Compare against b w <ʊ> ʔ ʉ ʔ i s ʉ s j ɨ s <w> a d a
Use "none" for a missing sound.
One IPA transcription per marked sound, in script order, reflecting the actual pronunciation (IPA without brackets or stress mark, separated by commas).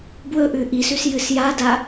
ɵ, j